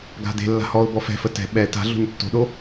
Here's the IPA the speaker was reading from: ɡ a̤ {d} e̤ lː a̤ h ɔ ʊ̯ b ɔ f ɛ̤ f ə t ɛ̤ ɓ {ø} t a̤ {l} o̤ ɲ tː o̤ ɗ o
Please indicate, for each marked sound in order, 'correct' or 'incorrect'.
correct, incorrect: ɛ, incorrect: ɮ

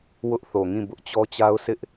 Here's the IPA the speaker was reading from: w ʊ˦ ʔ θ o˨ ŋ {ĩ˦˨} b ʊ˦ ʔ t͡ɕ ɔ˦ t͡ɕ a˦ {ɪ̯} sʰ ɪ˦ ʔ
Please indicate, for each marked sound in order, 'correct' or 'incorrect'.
correct, incorrect: ʊ̯

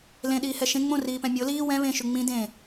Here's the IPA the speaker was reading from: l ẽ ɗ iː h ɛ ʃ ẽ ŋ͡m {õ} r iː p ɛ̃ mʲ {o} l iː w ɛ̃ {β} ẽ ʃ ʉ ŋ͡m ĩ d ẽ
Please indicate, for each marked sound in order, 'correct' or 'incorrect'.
correct, correct, correct

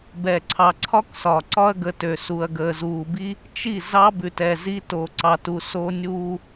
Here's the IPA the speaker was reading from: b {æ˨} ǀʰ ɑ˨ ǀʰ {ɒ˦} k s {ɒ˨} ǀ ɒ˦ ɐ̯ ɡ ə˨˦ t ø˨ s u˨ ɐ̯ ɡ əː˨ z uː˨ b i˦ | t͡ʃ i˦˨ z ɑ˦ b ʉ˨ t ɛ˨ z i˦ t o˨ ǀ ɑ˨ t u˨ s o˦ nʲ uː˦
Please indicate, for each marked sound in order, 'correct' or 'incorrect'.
incorrect: ɛ˨, correct, correct

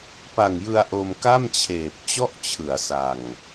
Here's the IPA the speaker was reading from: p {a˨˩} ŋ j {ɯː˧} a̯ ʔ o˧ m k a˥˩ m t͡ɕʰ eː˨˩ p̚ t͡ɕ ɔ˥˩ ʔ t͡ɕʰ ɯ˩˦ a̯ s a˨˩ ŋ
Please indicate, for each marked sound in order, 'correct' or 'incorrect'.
correct, incorrect: ɯ˧

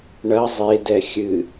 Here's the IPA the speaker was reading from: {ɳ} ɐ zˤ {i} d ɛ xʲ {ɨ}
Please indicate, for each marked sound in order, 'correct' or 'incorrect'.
correct, incorrect: e, correct

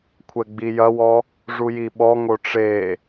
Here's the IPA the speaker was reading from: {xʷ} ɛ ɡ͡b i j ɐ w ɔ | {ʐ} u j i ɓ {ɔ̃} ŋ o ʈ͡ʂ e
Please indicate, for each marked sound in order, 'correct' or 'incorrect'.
incorrect: kʷʰ, correct, incorrect: ɔ

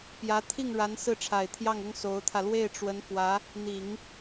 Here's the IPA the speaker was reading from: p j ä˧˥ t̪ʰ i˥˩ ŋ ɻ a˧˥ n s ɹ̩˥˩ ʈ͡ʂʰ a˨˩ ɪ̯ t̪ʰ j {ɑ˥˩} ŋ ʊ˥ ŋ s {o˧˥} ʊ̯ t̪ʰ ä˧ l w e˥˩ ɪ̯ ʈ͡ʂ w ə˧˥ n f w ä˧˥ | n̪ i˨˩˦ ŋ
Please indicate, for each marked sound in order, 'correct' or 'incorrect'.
correct, correct

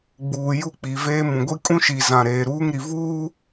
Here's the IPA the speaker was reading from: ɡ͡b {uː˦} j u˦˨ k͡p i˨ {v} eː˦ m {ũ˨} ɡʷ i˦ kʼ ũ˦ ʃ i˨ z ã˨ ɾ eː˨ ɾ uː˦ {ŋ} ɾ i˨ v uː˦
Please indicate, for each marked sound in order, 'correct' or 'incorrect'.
incorrect: uː˨, correct, correct, correct

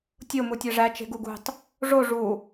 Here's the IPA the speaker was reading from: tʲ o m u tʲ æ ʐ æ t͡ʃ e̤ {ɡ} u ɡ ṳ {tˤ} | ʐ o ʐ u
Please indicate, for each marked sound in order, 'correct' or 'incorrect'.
correct, correct

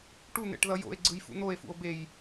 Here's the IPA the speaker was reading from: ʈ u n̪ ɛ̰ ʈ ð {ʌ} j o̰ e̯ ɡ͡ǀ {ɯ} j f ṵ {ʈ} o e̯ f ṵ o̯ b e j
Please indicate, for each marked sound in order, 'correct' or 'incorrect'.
correct, correct, incorrect: n̪

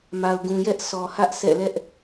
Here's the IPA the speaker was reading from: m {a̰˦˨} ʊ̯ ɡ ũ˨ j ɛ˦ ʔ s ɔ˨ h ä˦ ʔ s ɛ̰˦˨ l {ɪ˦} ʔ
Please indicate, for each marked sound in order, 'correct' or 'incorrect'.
incorrect: a˨, incorrect: ɛ˦

